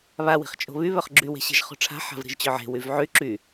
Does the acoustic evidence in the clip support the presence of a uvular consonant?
yes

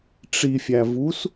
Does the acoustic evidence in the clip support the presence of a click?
no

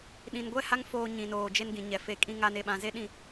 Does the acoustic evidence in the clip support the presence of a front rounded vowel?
no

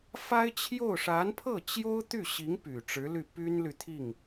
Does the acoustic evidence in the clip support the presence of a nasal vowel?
no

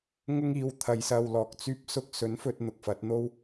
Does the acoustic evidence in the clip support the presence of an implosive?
no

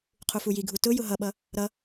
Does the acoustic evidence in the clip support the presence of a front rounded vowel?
no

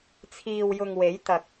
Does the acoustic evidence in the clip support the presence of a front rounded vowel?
no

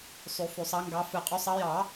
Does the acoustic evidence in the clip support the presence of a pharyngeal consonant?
no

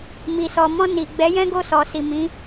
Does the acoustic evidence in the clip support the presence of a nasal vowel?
yes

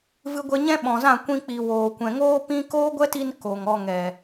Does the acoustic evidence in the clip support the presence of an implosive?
yes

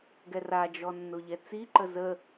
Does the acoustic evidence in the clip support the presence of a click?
yes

